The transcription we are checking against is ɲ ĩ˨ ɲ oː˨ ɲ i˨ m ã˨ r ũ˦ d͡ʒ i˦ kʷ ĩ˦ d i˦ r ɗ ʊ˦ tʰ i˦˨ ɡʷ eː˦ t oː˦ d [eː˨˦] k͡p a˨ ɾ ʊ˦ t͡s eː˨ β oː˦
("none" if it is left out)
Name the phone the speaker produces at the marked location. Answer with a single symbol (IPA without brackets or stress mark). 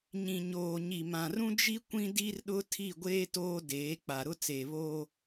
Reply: eː˨˦